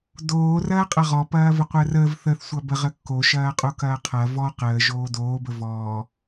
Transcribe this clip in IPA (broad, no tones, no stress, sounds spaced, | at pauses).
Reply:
d oː r ɐː qʼ ɐ ʁ ɔ p ɐː v ə qʷ əː r əː v θ ə θ sʷ ɐ b ə ʁ ə kː o ʃ ɐː qʼ o k ɐː qʰ ɐ v ɔ q əː ʒ oː d oː b ə v ɔː